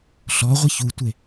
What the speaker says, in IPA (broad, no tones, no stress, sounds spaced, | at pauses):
ɬ ɔ ʁʷ ə ç u tʷ e